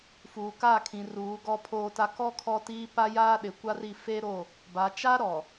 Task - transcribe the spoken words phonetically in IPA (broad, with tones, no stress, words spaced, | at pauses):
fuː˨kaː˦˨kʰĩ˨ ruː˨˦ ɡɔ˦pʰoː˦ta˦ kɔ˦ kʰɔ˦tiː˦ pa˦ jaː˦ɗɪ˨kʷa˦ri˦˨ fe˦ɾo˦˨ | ba˨t͡ʃa˦ ɾɔ˨